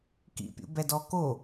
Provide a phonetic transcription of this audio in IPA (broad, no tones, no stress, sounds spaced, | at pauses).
k ḭ pʲ ṵ b ɛ d ɔ k o